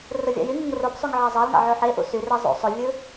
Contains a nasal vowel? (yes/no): no